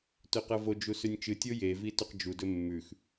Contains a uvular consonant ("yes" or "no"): yes